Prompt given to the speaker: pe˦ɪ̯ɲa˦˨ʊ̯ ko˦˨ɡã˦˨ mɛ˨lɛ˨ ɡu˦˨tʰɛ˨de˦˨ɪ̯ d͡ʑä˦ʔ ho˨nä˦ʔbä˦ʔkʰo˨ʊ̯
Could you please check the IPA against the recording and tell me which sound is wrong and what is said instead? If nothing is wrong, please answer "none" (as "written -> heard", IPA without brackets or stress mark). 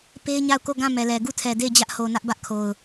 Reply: none